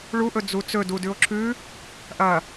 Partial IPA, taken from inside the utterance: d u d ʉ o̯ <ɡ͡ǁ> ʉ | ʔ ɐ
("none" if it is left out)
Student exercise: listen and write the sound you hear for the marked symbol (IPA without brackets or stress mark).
ǁʰ